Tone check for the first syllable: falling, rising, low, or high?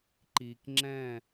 low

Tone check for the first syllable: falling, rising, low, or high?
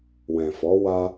low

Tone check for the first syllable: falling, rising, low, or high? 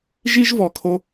high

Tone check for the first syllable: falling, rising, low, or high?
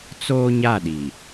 high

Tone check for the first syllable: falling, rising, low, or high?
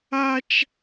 high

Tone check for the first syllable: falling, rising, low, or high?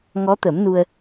rising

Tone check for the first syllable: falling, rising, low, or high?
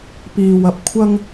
low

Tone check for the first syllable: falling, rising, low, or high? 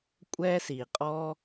high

